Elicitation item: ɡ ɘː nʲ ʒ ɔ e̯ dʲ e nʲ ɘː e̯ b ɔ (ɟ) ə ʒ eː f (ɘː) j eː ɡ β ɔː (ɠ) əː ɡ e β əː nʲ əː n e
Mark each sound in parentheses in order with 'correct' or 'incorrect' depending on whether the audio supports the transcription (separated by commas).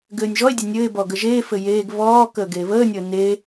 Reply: incorrect, incorrect, incorrect